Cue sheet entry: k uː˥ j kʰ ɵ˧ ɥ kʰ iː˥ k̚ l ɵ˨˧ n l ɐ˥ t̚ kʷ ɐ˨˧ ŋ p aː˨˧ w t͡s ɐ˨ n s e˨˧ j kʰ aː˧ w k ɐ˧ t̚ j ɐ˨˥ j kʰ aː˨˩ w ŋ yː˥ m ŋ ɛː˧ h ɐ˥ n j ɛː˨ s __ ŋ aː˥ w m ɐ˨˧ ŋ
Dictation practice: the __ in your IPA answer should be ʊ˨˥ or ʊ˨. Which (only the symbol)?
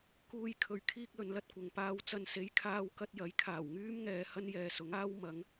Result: ʊ˨˥